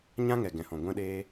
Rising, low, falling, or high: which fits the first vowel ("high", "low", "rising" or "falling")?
high